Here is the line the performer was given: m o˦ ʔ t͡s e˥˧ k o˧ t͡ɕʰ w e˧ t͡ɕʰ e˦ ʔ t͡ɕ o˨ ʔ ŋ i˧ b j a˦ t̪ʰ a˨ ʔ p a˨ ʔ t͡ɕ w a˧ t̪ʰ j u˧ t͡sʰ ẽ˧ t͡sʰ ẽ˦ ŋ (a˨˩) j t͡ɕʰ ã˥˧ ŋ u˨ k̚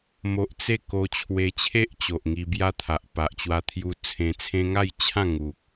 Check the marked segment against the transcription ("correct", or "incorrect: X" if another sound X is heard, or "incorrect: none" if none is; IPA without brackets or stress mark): incorrect: a˥˧